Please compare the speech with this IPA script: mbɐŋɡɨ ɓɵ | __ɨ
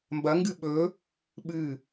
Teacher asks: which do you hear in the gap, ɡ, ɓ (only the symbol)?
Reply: ɓ